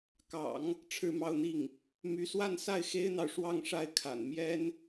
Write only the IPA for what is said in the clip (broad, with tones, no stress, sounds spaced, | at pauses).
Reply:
k ɑ̰˨˩˦ ŋ | ʈ͡ʂʰ ɻ̩˥˧ m ɑ˥˧ ʊ̯ n̪ i˥˩ ŋ | m y˧˥ s w a˥˧ n s a˥˩ ɪ̯ x e˥ ɪ̯ n̪ ɑ˨ ʊ̯ ʂ w ɑ˥˧ ŋ ʂ a˥˩ ɪ̯ kʰ a̰˨˩ n m j ɛ˥ n